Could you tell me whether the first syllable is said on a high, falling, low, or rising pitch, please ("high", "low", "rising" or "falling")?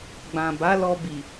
low